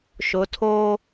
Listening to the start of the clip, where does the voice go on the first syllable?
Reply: rising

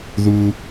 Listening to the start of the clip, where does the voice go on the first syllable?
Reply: high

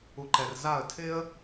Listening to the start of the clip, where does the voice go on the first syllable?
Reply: low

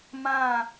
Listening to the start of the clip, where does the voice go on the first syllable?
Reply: falling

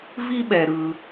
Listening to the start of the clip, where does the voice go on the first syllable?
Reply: high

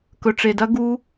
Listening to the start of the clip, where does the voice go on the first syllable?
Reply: low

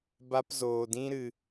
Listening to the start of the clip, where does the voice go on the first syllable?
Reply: high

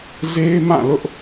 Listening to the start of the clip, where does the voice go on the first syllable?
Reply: high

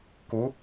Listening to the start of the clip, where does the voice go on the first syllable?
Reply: rising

